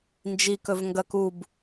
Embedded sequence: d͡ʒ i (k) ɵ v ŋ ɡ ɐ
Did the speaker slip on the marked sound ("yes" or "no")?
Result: no